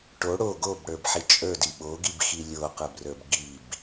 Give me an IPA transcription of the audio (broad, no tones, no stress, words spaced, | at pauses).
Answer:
ʈo ɽo ɡobɽə˞bħi t͡ʃʼə˞di ɓoɡibxi lʲoqə˞brə˞b ɡib